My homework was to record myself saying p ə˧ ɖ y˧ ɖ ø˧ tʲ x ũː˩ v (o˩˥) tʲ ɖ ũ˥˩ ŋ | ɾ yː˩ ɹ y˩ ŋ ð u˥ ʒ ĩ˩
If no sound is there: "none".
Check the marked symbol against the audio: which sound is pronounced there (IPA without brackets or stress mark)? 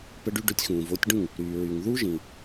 o˩˥